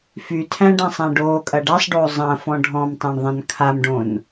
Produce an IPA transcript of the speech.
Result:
f y tʰ æ̃ ɖ æ̃ sˤ æ̃ ɖ oː kʼ ɐ ɖ a sˤ ɖ oː zˤ ɐ̃ f ɔ̃ ɖʱ ɔ̃ m tˤ æ̃ ɳ ðˤ ɐ̃ n kʰ a m ɖ õ n

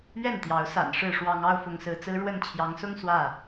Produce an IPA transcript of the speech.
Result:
ɥ ɛ˥˨ n t̪ j ɑ˨˦ ʊ̯ s a̰˨˩ n ʂ ɻ̩˥˨ ʂ w ɑ˦ ŋ ɑ˦ ʊ̯ f ʊ˨˦ ŋ s ɹ̩˨˦ t͡s ɹ̩˦ ɻ w ə˥˨ n t͡ɕʰ j ɑ˨˦ ŋ s ʊ˦ ŋ s w ä˥˨

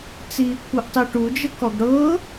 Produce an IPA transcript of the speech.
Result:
t͡s iː kʷʰ ɤ ʔ tˤ i ʈ u d͡ʒ ə k ɔ ɡ ɽ ɤː

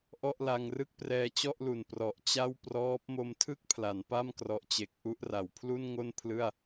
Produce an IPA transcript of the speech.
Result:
ʔ ɔ˥˩ ʔ l a˧ ŋ r ɯ˥˩ k̚ p r ɛː˧ t͡ɕ ɔ˥˩ ʔ l u˨˩ n p r ɔ˨˩ ʔ t͡ɕ a˥˩ w p r ɔː˦˥ p̚ m o˧ m tʰ ɯ˥˩ k̚ pʰ l a˩˦ n p a˥˩ m k r ɔ˨˩ ʔ t͡ɕ e˨˩ k̚ ʔ u˥˩ ʔ r a˩˦ w pʰ l u˥˩ n ŋ o˥˩ n pʰ l ɯ˥˩ a̯

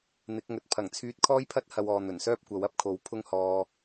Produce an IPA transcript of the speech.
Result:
n̪ ɪ˨˥ k̚ ŋ ɵ˨ t̚ pʰ ɐ˨˩ ŋ t͡sʰ yː˧ t̚ kʰ ɔː˥ j pʰ ɐ˥ t̚ h ɐ˧ w ɔː˨ n̪ ɵ˨˩ n s œː˥ p̚ kʷ ɐ˨˥ w ɐ˧ p̚ kʰ o˨˥ w pʰ ʊ˥ ŋ h ɔː˧

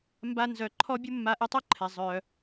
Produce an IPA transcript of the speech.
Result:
m b a˥ n z œ˧˥ ǃʰ ɔ˥ bʲ u˥ mː a˧˥ ʔ ɛ˧˥ tˤ œ˥ ǃʰ ɛ˨ zˤ œ˨

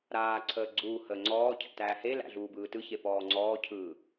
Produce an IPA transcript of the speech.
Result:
ɾ aː ǀʰ əː ɡ͡ǀ uː h əː ŋ͡ǀ ɔː cʰ æ̰ t æː h e l æ̰ ɮ uː b ɯː t ɯ ç e p ɔː ŋ͡ǀ ɔː cʰ ɯː

